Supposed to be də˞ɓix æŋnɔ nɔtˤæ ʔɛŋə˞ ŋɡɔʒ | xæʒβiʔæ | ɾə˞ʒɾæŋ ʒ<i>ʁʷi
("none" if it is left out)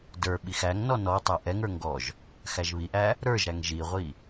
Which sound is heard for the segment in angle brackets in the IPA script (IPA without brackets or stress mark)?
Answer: i